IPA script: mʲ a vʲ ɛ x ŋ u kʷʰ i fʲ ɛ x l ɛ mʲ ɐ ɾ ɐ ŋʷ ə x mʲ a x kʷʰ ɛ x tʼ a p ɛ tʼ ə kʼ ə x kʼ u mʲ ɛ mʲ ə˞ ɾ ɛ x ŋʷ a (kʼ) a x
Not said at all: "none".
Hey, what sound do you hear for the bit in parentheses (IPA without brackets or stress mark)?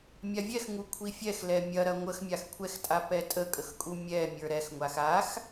x